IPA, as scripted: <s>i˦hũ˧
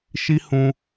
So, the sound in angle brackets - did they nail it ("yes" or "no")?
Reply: no